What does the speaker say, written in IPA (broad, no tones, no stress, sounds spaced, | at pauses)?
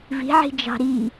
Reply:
v i̤ ʕ i̤ d͡ʒ ɑ̤ ɾ i